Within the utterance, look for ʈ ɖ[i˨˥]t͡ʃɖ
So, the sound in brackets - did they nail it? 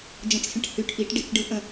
no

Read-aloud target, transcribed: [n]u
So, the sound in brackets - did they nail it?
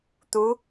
no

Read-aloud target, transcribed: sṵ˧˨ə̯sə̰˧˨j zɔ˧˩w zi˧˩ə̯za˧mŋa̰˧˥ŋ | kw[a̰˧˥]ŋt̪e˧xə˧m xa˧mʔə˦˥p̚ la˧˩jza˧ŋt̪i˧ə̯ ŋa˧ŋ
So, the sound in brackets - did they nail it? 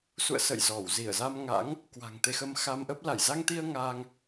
no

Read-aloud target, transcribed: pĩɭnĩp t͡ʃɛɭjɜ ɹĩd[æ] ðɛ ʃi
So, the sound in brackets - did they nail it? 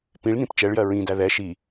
yes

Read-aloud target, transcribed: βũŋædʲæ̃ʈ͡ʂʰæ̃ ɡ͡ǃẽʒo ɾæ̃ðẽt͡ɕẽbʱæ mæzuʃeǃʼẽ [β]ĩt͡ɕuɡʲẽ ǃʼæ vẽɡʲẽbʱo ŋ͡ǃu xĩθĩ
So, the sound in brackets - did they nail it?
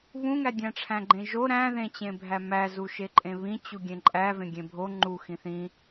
yes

